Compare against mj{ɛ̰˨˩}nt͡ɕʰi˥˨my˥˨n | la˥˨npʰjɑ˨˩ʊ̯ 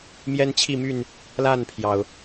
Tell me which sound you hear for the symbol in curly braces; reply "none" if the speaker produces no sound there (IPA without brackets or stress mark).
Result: ɛ˦